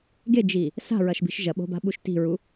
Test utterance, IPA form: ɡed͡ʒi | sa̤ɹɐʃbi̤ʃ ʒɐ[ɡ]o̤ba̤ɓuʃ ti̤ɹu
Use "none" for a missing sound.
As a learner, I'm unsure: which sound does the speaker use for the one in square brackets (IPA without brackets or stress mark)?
ɓ